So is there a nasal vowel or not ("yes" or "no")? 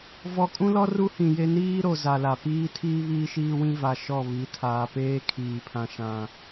yes